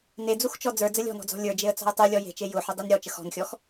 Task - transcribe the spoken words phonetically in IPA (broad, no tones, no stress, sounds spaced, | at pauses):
n e d͡z u x t͡ʃ ɔ d͡z ə˞ d͡z ə lʲ ɔ̤ n ɔ̤ d͡z ɔ̤ lʲ ə˞ d͡ʒ e ə̯ t͡s ɔ̤ ə̯ tˤ u lʲ ɔ j e̤ t͡ʃ e j ʊ ħ ʊ dˤ i n ɾʲ ɔ t͡ʃ ə x ɔ̤ n xʲ ɔ x